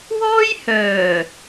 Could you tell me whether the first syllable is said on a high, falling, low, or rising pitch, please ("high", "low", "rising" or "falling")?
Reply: high